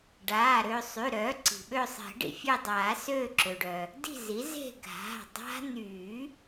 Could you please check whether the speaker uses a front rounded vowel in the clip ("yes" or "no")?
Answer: yes